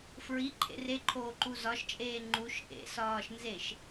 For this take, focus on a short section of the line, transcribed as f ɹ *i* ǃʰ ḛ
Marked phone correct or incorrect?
correct